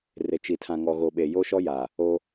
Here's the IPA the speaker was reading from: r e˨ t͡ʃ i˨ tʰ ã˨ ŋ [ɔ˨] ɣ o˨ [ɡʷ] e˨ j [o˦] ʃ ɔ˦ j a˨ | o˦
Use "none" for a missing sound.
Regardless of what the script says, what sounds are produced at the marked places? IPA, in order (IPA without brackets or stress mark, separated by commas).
ɔ˨, ɓ, o˦